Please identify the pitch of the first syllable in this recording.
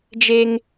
high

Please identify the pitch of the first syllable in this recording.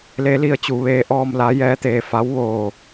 rising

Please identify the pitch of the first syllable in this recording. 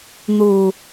low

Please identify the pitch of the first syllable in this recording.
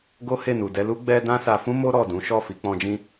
high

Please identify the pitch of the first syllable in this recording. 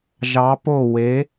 rising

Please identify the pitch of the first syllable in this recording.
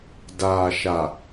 low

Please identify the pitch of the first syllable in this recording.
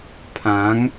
rising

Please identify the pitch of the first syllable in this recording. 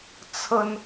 high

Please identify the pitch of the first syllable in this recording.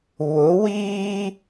rising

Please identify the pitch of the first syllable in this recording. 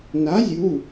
rising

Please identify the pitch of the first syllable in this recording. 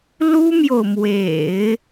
high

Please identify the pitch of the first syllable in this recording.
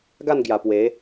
falling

